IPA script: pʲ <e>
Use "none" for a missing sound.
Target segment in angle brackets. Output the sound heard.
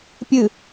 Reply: ɨ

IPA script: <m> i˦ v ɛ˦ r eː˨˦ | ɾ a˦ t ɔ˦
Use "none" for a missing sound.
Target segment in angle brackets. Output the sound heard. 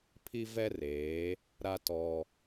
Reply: pʰ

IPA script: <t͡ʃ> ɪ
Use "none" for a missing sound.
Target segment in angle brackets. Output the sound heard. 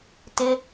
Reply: t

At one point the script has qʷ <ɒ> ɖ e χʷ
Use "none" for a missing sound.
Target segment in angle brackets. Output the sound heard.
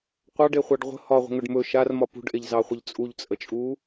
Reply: ɑ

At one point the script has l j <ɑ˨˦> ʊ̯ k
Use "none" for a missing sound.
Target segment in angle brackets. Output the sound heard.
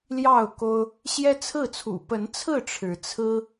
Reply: ɑ˥˨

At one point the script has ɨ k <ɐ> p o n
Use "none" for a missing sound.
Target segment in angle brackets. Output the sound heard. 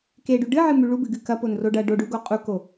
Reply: ɐ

